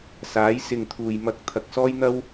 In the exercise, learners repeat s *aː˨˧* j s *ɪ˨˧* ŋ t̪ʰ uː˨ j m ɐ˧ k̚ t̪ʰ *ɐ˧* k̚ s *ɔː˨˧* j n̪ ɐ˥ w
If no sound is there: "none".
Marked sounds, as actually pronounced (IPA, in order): aː˨˧, ɪ˨, ɐ˧, ɔː˥

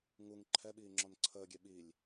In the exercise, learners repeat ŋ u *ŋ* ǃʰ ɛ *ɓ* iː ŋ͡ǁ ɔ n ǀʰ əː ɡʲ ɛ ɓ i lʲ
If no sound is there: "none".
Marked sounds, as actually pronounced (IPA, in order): ŋ, ɓ

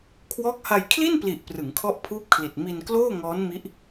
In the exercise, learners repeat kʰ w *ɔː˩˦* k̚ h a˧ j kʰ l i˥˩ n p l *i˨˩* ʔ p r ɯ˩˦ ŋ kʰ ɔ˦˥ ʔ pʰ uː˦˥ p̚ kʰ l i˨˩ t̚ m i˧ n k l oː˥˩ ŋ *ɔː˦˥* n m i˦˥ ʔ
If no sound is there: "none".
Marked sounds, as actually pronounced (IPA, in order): ɔː˦˥, i˨˩, ɔː˦˥

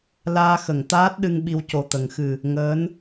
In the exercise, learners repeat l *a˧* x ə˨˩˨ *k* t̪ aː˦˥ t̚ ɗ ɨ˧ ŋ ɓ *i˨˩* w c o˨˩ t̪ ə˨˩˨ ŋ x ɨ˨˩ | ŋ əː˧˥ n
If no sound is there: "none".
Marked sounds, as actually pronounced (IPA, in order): aː˧, ŋ, i˧

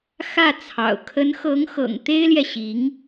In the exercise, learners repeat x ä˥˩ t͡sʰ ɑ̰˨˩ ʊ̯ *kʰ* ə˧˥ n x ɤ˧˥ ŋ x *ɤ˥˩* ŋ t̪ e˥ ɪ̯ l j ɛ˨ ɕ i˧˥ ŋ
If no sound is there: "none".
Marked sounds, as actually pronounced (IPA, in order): kʰ, ɤ̰˨˩

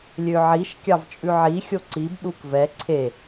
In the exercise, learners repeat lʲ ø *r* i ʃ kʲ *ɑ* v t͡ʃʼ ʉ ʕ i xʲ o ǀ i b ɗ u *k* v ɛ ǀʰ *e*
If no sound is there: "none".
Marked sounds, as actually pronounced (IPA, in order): ʕ, ɑ, k, e

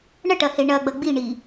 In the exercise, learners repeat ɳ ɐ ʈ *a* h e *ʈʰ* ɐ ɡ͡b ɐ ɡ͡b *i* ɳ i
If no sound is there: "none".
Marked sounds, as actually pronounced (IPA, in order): ɐ, ɳ, i

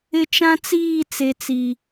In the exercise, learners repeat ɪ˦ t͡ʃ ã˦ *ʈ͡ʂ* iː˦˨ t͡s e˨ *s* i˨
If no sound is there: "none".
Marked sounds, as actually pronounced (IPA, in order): t͡s, t͡s

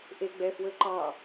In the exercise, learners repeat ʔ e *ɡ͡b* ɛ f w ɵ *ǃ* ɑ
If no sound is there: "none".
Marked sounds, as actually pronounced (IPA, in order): ɡ͡b, ǃ

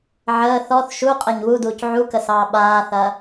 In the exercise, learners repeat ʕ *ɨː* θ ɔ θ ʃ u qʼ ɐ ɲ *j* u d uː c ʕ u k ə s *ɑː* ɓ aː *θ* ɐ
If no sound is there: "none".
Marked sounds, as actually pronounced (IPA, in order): əː, w, ɑː, θ

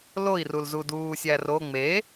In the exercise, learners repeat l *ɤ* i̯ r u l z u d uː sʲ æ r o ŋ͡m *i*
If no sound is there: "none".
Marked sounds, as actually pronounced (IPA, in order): o, e

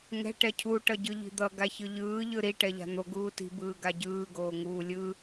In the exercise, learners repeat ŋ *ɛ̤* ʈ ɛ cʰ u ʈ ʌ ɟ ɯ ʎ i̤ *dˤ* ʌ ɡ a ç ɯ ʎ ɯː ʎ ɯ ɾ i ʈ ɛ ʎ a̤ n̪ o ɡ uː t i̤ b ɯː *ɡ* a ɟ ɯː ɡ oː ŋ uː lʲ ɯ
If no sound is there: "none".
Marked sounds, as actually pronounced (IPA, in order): ɛ̤, d̪, ɡ

